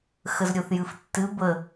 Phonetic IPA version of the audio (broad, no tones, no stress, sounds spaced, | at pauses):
x ə z ɾʲ o θ j ɨ f tː ɨ b ə